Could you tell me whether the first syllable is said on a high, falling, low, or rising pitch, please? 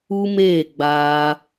high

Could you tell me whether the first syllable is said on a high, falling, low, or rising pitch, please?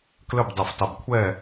falling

